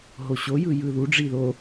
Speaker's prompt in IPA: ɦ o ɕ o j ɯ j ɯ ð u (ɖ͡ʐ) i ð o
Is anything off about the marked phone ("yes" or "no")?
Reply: no